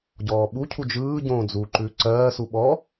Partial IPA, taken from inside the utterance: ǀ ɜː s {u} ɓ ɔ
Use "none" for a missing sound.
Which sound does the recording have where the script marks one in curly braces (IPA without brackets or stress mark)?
u